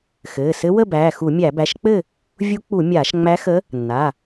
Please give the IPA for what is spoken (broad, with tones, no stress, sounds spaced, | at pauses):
x ɘː˩˧˩ s ɘ˧˥ w ə˥˨ b æː˩˧˩ x u˧˩˧ mʲ æ˧˩˧ b æ˩˧˩ ʃ k͡p ɘ˥˨ | vʲ u˧˥ k͡p u˧˩˧ mʲ aː˧˩˧ ʃ ŋ͡m æ˧˥ x ə˧˥ | nː a˩˧˩